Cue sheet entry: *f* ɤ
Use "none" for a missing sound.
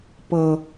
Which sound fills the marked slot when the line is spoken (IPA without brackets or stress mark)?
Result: p